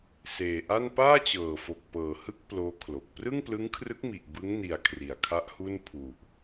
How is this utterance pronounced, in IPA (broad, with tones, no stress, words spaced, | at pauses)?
seː˨˩ʔa˥˩n paː˥˩t͡ɕɤː˨˩fo˨˩k̚ pɤː˨˩hɯ˥˩k̚ ploː˦˥kʰlo˨˩k̚ prɯ˥˩ŋplɯ˦˥ŋkʰrɯ˦˥k̚mi˨˩ʔ bɯ˦˥ŋni˨˩a̯ kʰri˩˦a̯kʰa˦˥ʔhu˥˩n pʰu˨˩ʔ